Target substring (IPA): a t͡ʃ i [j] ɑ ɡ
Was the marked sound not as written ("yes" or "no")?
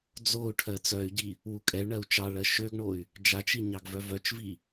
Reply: yes